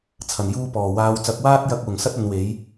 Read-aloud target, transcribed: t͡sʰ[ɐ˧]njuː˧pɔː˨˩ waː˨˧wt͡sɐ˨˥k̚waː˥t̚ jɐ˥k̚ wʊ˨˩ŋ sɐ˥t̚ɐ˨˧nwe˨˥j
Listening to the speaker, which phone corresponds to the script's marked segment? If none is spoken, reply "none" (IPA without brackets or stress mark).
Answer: ɐ˨˩